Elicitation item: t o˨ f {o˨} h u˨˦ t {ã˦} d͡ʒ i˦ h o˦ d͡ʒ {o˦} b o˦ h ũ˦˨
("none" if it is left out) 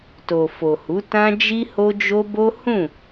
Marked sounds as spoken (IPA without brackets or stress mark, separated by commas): o˨, ã˦, o˦